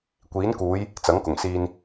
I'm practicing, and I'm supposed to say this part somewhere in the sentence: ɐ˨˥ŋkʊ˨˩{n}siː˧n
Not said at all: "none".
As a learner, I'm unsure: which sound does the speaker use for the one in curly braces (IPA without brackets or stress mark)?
ŋ